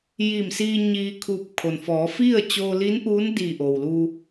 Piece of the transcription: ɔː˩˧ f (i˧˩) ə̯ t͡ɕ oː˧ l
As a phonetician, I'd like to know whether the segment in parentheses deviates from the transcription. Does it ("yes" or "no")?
yes